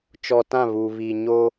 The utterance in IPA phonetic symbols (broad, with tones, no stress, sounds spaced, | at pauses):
t͡ʃ ɔ˨ t ã˦˨ β uː˨ β i˨ ɲ o˦